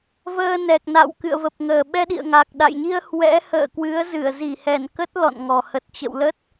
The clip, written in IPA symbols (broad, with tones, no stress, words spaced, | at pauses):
vəː˧ nɛ˨˩k̚na̰˧˨w kɨ̰˧˨ə̯və˨˩p̚ŋəː˨˩ ɓɛ˧ɗḭ˧˨ə̯ ŋa˨˩k̚ɗa̰˧˨jɲi˧ə̯ hwɛ̰˧˥ hə̰ː˧˨ kwɨ˨˦ə̯zɨ˧˩ə̯ zi˧˩hɛ˧˩nkə˦˥t̚ lɔ̰˧˨nŋɔ˨˩ hə˨˩t̚ t͡ɕə̰˧˨wlə˦˥t̚